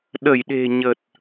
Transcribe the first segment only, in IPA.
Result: ɗ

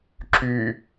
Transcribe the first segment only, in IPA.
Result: ǁ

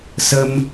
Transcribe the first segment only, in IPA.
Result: s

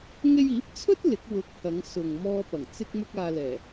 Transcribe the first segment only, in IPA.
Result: ŋ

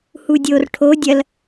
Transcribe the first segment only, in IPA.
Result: h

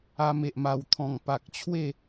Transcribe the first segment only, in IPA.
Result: a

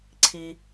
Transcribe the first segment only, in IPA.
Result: ǀʰ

